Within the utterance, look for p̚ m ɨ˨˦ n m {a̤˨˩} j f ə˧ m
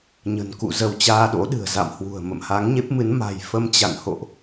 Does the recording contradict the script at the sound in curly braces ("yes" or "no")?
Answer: no